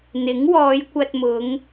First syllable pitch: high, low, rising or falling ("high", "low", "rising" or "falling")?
rising